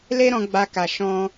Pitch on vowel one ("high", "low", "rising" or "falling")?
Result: high